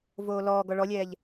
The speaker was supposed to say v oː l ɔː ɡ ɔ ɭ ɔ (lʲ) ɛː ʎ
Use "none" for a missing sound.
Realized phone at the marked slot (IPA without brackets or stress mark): lʲ